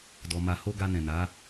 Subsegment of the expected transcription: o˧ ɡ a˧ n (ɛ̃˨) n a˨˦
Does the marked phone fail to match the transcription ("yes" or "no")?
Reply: no